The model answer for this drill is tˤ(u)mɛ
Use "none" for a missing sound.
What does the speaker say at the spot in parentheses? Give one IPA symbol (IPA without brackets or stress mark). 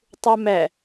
u